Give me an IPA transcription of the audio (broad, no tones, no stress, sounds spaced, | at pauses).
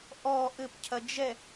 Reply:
ʔ ɔ ʔ ɘ p cʰ ɐ d͡ʒ ɛ